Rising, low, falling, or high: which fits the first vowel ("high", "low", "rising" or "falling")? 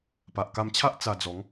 low